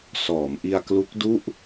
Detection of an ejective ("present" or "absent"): absent